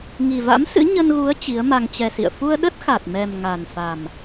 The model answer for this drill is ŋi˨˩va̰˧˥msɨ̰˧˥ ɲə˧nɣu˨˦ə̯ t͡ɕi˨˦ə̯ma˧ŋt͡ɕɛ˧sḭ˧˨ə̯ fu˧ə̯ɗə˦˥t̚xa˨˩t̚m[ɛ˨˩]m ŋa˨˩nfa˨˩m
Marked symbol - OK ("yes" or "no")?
yes